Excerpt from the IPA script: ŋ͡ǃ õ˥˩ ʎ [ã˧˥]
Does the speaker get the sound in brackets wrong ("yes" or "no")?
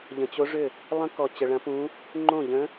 yes